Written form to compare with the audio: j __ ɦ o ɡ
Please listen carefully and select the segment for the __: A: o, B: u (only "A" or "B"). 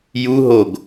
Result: B